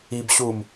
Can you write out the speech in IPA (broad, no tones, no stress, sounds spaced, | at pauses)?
i b ɕ u m